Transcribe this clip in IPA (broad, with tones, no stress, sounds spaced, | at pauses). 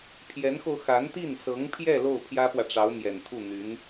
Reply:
pʰ j ɛ˧˥ n x o˧ ʊ̯ x a˧˥ n t̪ i˥˩ n s ɤ˧˥ ŋ pʰ j ɛ˥˧ l o˥˩ ʊ̯ pʰ j ä˥ p w ä˨ ʈ͡ʂ ɑ˧˥ ʊ̯ m j ɛ˨˩ n t̪ʰ u˥˩ n̪ y˧˥ n